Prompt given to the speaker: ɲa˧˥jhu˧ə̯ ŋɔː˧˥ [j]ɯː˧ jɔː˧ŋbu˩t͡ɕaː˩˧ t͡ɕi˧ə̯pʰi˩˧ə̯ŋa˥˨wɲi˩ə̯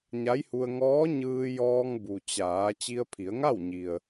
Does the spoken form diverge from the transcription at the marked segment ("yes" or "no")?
yes